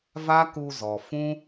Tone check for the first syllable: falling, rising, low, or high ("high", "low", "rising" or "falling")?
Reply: high